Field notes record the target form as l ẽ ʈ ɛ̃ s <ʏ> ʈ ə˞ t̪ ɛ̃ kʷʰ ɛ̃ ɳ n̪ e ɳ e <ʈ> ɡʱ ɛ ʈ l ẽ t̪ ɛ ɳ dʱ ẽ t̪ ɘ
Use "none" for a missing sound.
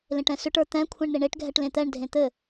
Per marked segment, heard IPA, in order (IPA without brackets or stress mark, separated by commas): ʏ, ʈ